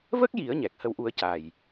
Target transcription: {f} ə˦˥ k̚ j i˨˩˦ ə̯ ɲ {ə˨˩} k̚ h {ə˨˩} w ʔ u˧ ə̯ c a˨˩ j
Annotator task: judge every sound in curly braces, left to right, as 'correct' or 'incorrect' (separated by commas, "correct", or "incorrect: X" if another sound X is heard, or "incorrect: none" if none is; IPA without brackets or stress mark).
incorrect: v, incorrect: ɛ˨˩, incorrect: ə˧